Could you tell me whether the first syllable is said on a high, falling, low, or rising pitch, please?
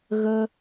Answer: high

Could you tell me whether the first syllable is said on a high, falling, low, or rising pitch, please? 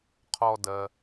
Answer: low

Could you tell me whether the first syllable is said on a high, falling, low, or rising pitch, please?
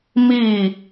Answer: falling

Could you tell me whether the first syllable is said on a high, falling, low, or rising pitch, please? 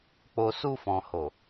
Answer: low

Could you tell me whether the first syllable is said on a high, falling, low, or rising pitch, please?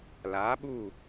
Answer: rising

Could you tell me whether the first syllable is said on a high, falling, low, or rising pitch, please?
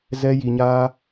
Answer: high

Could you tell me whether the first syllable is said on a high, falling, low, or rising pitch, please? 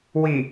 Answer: low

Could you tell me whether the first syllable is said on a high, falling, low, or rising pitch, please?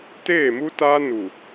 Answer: falling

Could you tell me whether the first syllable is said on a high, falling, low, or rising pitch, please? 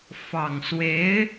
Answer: low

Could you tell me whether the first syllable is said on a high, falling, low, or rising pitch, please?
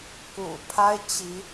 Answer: low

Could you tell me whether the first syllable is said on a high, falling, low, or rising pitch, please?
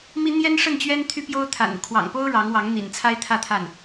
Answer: high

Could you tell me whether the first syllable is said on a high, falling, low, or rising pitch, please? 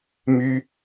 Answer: high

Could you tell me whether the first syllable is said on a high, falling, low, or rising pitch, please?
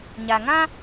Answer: low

